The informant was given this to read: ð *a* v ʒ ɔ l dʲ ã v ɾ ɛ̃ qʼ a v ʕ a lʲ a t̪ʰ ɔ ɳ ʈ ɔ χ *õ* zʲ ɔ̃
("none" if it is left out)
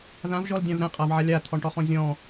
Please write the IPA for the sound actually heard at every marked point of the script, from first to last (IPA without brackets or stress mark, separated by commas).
ã, ɔ̃